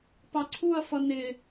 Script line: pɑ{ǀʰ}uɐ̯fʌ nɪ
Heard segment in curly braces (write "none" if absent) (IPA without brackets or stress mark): ǀʰ